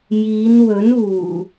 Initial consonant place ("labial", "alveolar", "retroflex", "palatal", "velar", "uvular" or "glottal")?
palatal